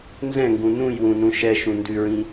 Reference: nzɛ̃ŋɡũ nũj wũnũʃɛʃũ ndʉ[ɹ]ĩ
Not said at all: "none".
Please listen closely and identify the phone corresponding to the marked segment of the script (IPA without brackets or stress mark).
ɹ